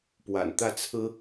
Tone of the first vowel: low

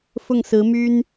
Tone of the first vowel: falling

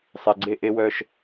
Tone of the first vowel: low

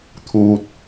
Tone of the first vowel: high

